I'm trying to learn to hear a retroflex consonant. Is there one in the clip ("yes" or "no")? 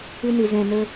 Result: no